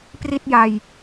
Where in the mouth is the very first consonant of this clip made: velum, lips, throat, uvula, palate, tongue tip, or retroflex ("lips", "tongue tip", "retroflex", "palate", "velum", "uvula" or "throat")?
lips